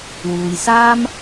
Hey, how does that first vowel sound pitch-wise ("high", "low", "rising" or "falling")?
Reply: low